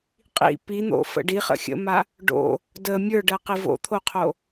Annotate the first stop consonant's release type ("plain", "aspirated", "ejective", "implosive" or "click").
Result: ejective